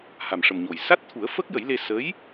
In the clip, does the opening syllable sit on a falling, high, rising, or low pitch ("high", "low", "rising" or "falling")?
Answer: low